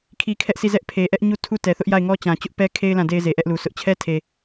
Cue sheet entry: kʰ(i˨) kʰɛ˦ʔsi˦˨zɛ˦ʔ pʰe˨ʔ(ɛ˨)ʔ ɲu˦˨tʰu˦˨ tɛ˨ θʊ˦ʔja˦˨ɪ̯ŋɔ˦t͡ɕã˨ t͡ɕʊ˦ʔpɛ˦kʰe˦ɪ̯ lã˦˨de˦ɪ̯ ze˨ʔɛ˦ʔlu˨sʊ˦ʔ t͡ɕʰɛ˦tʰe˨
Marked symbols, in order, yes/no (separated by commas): no, no